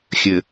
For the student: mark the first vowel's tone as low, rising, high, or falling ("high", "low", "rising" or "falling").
low